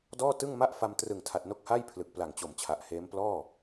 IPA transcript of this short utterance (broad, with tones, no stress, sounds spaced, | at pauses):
d ɔː˥˩ t ɯ˥˩ ŋ m a˥˩ ʔ f a˧ m t r ɯ˨˩ ŋ tʰ a˨˩ t̚ n o˦˥ k̚ h a˥˩ j pʰ l ɯ˨˩ k̚ p l a˨˩ ŋ t͡ɕ o˨˩ m t͡ɕʰ a˨˩ ʔ h eː˦˥ m p l ɔː˥˩